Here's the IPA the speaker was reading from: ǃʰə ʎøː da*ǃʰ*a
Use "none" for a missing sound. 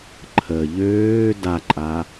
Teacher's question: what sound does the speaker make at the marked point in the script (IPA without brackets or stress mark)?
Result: ǃʼ